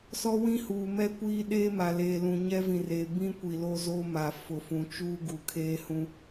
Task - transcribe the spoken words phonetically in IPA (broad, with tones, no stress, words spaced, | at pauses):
sɔ˦wĩ˦huː˨ mɛ˦ kʷiː˦ ɗeː˦ma˨ leː˨ lũ˨ɲɛ˦vĩ˨reː˨ bĩ˦kʷi˨ lo˦zo˦ ma˨fʊ˨fũ˨t͡ʃuː˦ ɡu˨kʰeː˦hũ˦